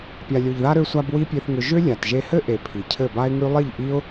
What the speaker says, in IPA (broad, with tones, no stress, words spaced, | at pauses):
pʲa˨lʲo˨ʎða˧ ɾø˧sʷa˧b wi˦pʲe˧θŋʏ˧ ʒʏ˦ lʲa˨tʒe˧hɘ˦ʔe˨ pʰi˨cʰɘ˦˨ ba˦ɪ̯ŋʉ˦ lˠi˦˨ʎʔi˦ʊ̯